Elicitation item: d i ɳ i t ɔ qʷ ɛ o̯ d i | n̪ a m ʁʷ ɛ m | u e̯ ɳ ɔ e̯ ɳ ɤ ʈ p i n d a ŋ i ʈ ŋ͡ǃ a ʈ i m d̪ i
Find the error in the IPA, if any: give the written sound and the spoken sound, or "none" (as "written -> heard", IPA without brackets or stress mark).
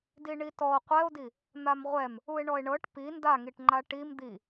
none